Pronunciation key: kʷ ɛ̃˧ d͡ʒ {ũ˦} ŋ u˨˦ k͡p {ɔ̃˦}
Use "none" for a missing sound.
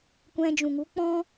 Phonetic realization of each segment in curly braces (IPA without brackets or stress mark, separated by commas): ũ˨, ɔ̃˦